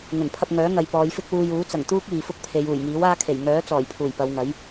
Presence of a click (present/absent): absent